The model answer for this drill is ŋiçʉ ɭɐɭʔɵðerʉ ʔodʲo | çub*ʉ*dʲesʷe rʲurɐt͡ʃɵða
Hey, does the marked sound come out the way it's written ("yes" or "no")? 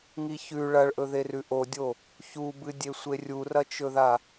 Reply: no